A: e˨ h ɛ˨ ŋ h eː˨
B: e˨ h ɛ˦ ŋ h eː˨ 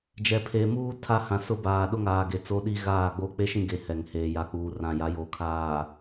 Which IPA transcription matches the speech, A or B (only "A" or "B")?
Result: A